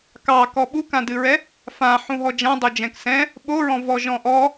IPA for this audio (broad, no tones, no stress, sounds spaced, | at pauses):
k ɑ k ɔ ɓ u k ã d ɨ ɹ ɛ | f ã ħ ũ ɦ ɔ d͡ʒ ã dˤ o d͡ʒ ɛ̃ k s ɛ̃ | ɓ o ɹ ɔ̃ v ɔ ʒ ɔ̃ ʔ ɔ